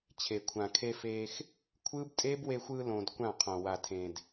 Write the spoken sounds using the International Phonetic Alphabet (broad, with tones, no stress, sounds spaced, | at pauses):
t͡ɕʰ e˨ kʷʰ ã˨ kʰ e˧ f eː˧ x | kʷʰ ɯː˦ b tʼ eː˦ b w e˧ xʷ ɯː˧ l õː˨ d kʷ ã˦˨ qʰ õ˨ w a˨ tʰ ẽ˨ d